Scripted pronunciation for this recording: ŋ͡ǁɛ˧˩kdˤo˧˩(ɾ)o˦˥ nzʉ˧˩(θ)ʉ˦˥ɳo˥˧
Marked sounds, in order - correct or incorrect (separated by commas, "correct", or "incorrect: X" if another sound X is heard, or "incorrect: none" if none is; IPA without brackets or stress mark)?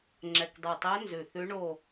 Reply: incorrect: tˤ, correct